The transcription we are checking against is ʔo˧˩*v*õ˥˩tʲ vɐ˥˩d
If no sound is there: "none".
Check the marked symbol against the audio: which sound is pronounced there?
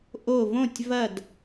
v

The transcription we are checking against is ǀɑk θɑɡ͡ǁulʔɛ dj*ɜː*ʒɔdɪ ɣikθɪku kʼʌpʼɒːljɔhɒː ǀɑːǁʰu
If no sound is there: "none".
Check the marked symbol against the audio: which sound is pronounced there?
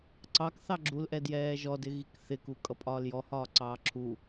ɛː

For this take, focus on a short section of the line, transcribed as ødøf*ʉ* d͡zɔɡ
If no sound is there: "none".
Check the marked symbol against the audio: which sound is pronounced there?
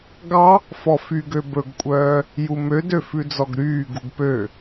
ʉ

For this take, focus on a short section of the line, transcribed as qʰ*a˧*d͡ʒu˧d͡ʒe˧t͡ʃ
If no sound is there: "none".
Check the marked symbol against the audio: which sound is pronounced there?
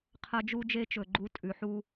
ɐ˧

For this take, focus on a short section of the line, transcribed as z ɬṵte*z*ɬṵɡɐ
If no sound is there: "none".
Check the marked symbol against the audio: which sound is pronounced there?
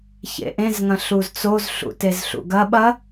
z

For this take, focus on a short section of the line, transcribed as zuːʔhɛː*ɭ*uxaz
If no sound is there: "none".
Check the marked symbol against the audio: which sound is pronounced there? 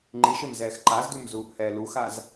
l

